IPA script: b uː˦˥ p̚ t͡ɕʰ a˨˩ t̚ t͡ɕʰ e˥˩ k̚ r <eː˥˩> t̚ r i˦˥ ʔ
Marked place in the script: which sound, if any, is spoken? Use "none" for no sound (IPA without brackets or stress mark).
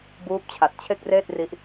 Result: eː˥˩